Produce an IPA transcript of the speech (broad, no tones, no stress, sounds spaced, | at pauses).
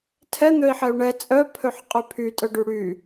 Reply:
tʰ ɛ n̪ ø i̯ ħ ɛ u̯ ɳ ɛ t͡sʼ œ pʰ ø ħ qʼ y pʰ y tʼ œ ɖ y ɽ y